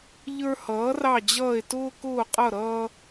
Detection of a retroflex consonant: absent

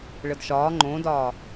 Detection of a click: present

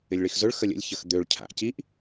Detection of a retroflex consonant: present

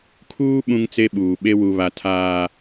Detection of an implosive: present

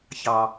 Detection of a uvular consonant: absent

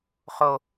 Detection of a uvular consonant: present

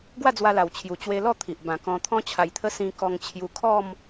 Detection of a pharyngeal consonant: absent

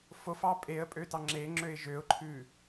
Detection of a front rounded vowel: present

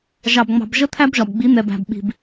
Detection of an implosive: present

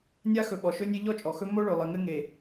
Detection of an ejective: present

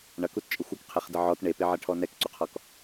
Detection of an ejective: present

